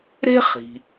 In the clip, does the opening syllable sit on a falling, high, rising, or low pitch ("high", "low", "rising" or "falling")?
high